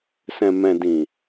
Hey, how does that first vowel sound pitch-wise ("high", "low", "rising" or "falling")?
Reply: low